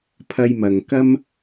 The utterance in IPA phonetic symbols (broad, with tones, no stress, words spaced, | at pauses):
pʰɐ˧jmɐ˨ŋkɐ˥m